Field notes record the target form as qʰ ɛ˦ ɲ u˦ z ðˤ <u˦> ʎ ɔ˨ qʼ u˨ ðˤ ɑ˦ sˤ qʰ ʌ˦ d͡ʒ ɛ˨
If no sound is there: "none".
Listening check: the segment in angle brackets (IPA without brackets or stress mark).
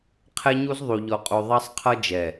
u˨